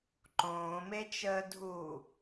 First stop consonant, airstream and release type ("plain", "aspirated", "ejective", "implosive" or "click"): click